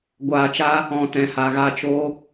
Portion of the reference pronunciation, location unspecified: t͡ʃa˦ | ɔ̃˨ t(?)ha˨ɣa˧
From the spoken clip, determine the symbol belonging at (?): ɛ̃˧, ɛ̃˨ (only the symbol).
ɛ̃˨